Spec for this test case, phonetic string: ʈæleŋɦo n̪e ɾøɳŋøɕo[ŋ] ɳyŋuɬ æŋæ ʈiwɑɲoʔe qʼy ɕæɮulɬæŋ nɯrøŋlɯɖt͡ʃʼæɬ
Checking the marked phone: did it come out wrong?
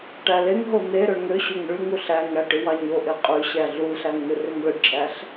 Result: no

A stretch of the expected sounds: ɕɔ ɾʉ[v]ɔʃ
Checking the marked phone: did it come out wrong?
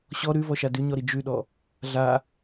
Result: no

